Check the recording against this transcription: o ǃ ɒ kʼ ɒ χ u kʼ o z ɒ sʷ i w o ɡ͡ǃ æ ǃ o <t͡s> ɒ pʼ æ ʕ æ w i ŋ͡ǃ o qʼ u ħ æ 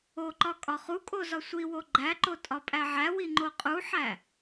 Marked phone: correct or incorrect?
incorrect